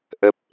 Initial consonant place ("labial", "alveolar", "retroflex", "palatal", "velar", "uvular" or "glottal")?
glottal